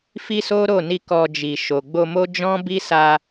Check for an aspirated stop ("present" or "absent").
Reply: absent